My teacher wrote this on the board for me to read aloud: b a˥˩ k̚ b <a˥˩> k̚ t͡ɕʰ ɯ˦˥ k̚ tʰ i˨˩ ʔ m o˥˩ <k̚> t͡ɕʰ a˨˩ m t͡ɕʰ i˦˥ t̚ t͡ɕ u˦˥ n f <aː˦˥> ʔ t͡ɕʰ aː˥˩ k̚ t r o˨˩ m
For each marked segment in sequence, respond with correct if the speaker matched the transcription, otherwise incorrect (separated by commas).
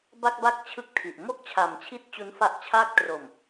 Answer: correct, correct, incorrect